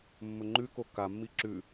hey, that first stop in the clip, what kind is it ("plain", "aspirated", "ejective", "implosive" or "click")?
click